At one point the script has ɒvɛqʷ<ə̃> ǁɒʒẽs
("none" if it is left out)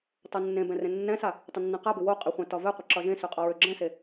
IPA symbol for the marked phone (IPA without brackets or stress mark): ə